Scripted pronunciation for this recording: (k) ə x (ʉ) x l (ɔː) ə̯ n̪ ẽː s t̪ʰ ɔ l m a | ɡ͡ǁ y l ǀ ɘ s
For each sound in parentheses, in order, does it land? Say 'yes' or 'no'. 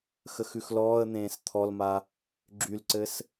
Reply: no, yes, yes

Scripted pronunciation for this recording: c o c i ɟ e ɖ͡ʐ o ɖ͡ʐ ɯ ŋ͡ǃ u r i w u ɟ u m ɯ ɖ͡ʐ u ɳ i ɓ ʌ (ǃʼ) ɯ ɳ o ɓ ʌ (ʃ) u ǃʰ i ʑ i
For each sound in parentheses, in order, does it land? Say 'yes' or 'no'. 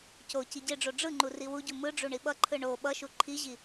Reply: no, yes

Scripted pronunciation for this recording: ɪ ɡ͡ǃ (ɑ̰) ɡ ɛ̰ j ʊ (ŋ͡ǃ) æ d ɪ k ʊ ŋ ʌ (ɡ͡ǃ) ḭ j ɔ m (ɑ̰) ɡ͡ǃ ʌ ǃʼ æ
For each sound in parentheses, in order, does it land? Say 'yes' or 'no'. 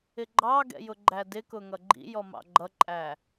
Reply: no, no, yes, yes

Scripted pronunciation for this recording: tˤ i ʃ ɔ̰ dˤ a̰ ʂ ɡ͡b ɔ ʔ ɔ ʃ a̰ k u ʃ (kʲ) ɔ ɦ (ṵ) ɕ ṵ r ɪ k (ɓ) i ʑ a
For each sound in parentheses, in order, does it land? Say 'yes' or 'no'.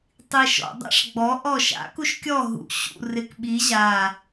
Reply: yes, yes, yes

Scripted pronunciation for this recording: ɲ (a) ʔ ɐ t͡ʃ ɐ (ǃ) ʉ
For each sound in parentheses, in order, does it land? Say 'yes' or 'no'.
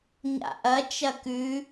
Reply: no, no

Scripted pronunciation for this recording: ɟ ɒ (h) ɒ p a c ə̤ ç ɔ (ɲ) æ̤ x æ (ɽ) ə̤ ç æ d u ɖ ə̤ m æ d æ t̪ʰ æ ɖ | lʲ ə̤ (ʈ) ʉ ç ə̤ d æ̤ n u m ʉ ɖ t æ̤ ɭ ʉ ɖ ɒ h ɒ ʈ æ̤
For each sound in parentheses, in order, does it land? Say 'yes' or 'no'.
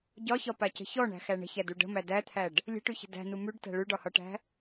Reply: no, no, no, yes

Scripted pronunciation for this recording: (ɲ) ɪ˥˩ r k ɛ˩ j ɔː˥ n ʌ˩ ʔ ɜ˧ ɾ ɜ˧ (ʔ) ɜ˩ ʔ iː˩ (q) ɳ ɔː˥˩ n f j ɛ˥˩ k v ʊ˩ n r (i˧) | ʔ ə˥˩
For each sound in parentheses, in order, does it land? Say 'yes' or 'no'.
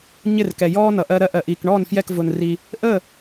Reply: yes, yes, no, no

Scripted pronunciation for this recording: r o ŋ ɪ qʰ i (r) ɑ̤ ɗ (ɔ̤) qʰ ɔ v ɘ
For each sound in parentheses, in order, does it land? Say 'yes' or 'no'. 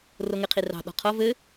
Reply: yes, yes

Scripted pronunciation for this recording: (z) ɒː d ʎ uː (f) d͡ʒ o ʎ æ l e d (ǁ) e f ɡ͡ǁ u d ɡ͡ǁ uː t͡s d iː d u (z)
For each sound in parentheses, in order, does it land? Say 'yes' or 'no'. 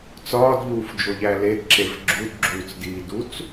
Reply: no, yes, yes, no

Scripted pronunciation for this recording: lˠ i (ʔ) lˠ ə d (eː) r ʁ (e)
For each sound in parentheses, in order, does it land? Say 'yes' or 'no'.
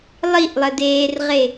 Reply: yes, yes, yes

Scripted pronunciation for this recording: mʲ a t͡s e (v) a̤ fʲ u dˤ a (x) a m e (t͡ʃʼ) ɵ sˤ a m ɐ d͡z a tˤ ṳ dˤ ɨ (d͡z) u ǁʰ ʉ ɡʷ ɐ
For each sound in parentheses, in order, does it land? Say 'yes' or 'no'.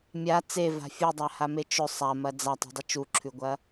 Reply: yes, no, no, no

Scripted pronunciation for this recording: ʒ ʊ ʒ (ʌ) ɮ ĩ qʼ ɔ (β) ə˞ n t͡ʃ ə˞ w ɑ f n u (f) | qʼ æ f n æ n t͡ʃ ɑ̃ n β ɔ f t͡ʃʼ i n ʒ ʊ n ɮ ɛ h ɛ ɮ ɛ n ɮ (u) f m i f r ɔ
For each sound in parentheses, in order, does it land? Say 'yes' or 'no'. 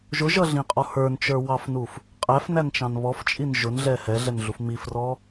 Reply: yes, no, yes, yes

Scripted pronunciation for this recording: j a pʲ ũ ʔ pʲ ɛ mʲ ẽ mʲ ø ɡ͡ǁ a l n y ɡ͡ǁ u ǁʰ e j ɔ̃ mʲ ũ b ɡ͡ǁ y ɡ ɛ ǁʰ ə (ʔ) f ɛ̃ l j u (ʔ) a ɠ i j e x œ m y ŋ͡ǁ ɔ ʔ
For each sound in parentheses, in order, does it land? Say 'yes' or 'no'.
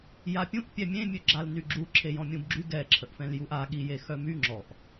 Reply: yes, yes

